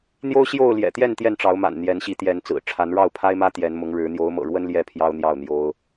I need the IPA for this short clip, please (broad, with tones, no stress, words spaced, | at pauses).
n̪jo˦ʊ̯ɕjo˥˨ʊ̯ ljɛ̰˨˩t̪jɛ˥˨n t̪jɛ˥˨nʈ͡ʂɑ˨˦ʊ̯ma̰˨˩n n̪jɛ˨˦nɕi˨˦t̪jɛ˨˦n t͡sɹ̩˨˩ ʈ͡ʂʰa˨˦nɻɑ˥˨ʊ̯pʰa˦ɪ̯mä˦ t̪jɛ˨˦nmʊ˨˦ŋɻɻ̩˨˦ n̪jo˨˦ʊ̯mɤ̰˨˩ɻwə˦n ljɛ˥˨pʰjɑ˦ʊ̯n̪jɑ˥˨ʊ̯n̪jo˦ʊ̯